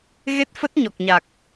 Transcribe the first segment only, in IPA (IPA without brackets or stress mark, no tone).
ɣ